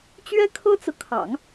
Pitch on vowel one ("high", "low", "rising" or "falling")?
high